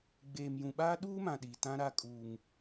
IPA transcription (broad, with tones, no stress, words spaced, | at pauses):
ɡ͡beː˨mjũ˨ɓaː˦ ɗuː˦mã˨ ɗi˨tã˦ɾa˦ kʼuː˦ŋ